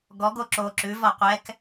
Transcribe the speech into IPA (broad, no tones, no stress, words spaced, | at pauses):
ɡɔɡo ǁo ǁʉvɒ qʷɛk